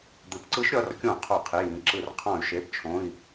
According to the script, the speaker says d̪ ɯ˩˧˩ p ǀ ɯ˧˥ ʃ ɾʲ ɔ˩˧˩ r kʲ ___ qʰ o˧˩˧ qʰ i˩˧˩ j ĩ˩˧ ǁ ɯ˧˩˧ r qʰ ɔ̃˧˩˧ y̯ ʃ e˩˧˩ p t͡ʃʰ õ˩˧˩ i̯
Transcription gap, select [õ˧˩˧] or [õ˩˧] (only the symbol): õ˧˩˧